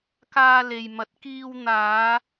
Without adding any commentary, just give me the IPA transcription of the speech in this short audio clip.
k aː˧ l e˨ j m ɐ˨˥ t̚ k iː˧ w n̪ aː˨˧

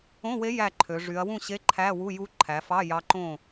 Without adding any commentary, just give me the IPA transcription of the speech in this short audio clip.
õ˧˥˧ w e˧˥ j æ˥˨ ǃʰ ø˩˧ ʐ y˩˧ ɐ̯ w ũ˥˨ ɕ e˧˥˧ ǃʰ æ˧˥˧ w u˧˥˧ j u˧˥ ǃʰ æ˩˧ f ɑ˧˥˧ j ɑ˧˥ ǃ õ˥˨

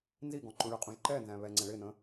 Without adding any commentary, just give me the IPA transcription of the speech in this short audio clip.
n z i ɡ ɔ̃ ǃ ũ ɭ ə qʼ ũ ʒ ǃ ɛ n z æ̃ β ɛ ŋ͡ǀ ɛ̃ ɭ ɪ n ə̃

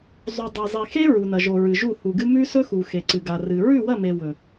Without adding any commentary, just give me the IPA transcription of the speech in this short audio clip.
zˤ u˨ dˤ e˨ zˤ i˨ x e˦ ɹ u˨ n ɐ˨ ʒ o˨ ɹ ɨ˨ ʒ u˦˨ h u˨ ɡ ɨ˦ m ʉ˦ s ɵ˦ x u˨ x e˨ ǀ ɨ˨ ɡ a˨ r ɨ˨ ɹ ʉ˦˨ w ɐ˦˨ m e˨ w ɵ˨

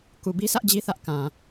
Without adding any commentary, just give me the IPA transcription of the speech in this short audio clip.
k u˨ b i˦ s ä˦ ʔ d͡ʑ i˦ θ ä˦ ʔ k ã˨

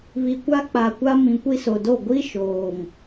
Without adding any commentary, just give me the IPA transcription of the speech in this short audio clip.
β i˨ kʷ a˦ k͡p a˨ kʷ a˦ m ĩ˨ kʷ i˦ s o˨ d o˦˨ ɡʷ i˦ ʃ oː˨ ŋ

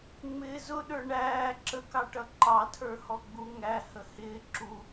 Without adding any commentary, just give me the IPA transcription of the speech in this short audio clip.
ŋ͡m ɪː z ʊ ɗ ə˞ ɳ æː ǁ ə k ɑ ʈ ʌ ǃ ɑ tʰ ə˞ h ɔ ɡ͡b u ŋ æ h ə h ɪː ǁ u

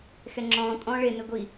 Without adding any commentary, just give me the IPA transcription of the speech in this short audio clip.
x ɛ ŋ͡ǁ ɔ̃ː tʼ ɔ̃ː ɭ e n e ɡʷ i

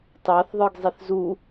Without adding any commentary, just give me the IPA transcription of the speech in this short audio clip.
t ɑ θ ðˤ ə˞ ɡ zˤ i θ z u

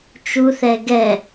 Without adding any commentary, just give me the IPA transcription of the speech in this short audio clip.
t͡ʃ u θ ɛ ɡ ɛ

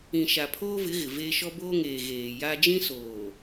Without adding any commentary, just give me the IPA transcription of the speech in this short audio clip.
ĩ˨ ʃ a˨ pʰ oː˦ v ɪ˨˦ ɣ ɪ˨ v eː˦ ʃ ɔ˦ b oː˦ ŋ eː˨ ɣ eː˨ j a˦ d͡ʒ ĩ˦ s oː˨

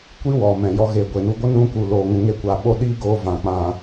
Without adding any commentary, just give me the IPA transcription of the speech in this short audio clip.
kʷ i˦ w ɔ˨ m ɛ̃˨ j ɔ˧ ɣ e˨ ɡʷ e˨ n u˧ ɡʷ ə˦ n ũ˧ k u˨ l oː˨ ŋ ũ˨ ŋ e˧ kʷ aː˨ ɓ o˧ ɗ iː˦ ɡ oː˧ v ã˨ k͡p ã˨

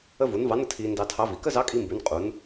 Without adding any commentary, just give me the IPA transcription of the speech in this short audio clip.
ə˧ v u˩˧ n v ɑ˧˥ n ə˩ tʰ iː˧ n d ɑ˧ tʰ ɑ˧˥ v i˩ k ə˥ z ɑ˧˥ kʼ i˧ m b ʉ˩˧ n qʼ u˩˧ n

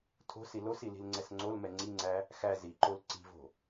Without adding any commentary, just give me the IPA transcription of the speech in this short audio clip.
tʰ o̤ s i l o s i l i̤ l ŋ͡ǀ ɛ s ŋ͡ǀ o l m ɛ ŋ͡ǀ i ŋ͡ǀ æ | x æ z i ǃ o l ǀ i̤ v o̤

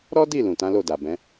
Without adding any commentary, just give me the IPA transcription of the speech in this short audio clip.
ɾ ɔ˦ d i˦˨ l ũ˨ t ã˨˦ l o˦˨ d a˨ b ɛ̃˨˦

